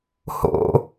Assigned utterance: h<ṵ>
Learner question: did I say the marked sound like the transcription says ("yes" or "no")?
no